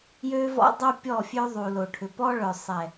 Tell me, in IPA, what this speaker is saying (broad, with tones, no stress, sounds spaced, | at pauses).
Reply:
j ø˦ v ɔ̰˦ dˤ o˦ pʲ ɔ˦˨ fʲ ø˦ ðˤ u˨ l o˨ ʈʰ ʏ˨ p ɔ˦ ɭ œ˨ sˤ ɛ˨